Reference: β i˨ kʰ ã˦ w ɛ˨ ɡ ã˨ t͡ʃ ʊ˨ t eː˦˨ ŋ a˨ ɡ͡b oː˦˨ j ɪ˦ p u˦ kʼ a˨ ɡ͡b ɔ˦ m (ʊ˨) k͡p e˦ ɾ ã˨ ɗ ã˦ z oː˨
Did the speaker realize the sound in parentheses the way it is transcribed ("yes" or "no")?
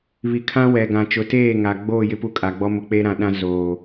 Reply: yes